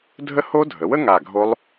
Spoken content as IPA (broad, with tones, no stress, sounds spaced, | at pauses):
dʱ ə˦˥ h o˦˥ dʱ ə˩˥ w ə˦˥ ŋ a˧˩ ɡʱ o˦˥ lˠ